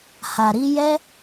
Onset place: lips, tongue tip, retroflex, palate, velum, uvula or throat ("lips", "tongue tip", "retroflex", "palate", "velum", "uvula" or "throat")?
throat